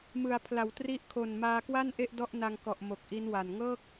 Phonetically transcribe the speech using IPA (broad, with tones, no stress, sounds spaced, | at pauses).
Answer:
m ɯ˩˦ a̯ pʰ l a˩˦ w t r i˦˥ ʔ kʰ o˨˩ n m aː˧ k w a˥˩ n ʔ e˥˩ ʔ d ɔ˥˩ ʔ n a˧ ŋ k ɔ˨˩ ʔ m o˨˩ k̚ ʔ i˦˥ n w a˨˩ n ŋ ɤː˥˩ k̚